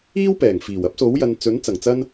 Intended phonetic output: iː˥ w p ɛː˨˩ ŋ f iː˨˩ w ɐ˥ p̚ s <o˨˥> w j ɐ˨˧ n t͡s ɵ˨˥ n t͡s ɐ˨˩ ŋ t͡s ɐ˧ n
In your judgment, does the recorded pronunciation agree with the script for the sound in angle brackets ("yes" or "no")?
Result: yes